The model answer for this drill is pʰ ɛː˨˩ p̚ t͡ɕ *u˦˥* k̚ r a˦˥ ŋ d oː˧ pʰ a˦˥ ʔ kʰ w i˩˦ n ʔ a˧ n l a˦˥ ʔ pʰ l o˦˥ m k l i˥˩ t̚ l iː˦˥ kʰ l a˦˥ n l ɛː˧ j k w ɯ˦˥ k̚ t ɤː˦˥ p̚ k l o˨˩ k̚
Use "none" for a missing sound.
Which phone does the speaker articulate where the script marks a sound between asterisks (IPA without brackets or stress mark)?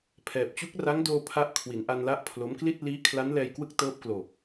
u˦˥